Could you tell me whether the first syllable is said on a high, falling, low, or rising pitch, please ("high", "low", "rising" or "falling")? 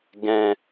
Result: low